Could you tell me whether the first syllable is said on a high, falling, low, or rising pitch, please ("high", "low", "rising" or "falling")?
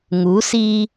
rising